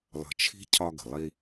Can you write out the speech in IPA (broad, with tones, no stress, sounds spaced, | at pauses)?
lˠ ə̤˧ t͡ʃʰ i̤˥ cʰ ɒ˧ ɡ ə̤˩ lˠ i˧